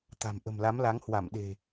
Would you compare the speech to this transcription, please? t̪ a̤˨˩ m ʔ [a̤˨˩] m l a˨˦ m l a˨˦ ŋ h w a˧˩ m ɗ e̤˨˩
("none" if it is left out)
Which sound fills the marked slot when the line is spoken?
ə̤˨˩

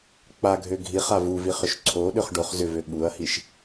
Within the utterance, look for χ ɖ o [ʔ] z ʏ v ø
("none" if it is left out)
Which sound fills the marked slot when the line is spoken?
χ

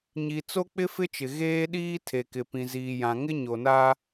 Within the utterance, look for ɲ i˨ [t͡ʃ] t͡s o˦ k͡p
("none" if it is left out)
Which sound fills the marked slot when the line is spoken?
none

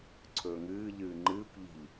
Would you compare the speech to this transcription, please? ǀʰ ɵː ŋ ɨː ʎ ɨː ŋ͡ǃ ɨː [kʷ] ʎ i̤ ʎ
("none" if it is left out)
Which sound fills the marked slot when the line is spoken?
kʷ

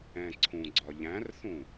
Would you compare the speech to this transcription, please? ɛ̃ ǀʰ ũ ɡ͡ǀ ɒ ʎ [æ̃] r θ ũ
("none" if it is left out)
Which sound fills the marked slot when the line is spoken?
æ̃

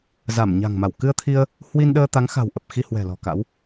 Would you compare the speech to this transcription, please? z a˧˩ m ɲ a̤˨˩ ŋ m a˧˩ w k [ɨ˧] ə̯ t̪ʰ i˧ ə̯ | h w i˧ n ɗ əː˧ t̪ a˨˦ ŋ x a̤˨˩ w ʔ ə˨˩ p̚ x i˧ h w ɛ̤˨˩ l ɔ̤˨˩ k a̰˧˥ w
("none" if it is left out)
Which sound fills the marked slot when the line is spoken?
ɨ˧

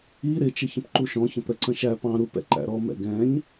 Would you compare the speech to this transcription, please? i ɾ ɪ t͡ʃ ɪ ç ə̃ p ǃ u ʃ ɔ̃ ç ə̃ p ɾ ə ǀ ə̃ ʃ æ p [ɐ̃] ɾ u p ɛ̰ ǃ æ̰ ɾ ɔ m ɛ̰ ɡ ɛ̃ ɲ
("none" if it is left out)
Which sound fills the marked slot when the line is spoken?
ɑ̃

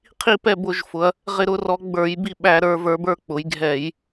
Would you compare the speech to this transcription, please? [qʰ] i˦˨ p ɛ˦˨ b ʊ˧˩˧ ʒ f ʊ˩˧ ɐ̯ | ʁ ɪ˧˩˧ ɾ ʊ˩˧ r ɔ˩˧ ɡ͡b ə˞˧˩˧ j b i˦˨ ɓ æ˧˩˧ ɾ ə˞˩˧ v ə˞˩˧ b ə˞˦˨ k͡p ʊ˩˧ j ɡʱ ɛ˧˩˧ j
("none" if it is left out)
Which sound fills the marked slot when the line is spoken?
qʰ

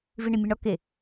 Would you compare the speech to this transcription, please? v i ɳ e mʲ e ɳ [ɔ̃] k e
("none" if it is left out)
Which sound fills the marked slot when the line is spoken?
ɔ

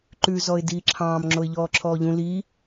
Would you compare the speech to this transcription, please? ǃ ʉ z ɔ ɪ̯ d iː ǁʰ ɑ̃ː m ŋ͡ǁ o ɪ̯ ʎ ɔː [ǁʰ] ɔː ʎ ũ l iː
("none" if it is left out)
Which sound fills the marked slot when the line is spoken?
ǁʰ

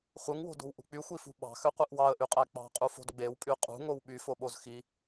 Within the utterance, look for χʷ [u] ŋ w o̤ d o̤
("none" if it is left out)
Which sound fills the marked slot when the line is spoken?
ɯ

